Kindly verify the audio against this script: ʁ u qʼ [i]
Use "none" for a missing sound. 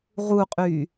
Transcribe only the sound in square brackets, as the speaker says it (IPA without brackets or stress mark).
y